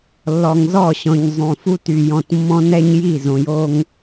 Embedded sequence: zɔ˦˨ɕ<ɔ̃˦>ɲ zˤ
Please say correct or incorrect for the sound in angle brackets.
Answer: incorrect